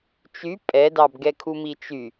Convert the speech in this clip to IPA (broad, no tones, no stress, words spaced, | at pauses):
t͡ʃy pʼɛdɑbɡɛkʰu mit͡ʃy